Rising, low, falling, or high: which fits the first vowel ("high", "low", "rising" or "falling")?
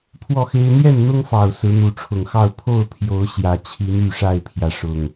falling